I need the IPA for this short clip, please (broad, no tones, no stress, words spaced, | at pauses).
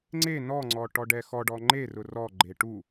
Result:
ŋ͡ǀe nɔŋ͡ǀɔ ʈɔɖɛxɔɖɔ ŋ͡ǃerʊ rɔɡ͡ǃe ʈu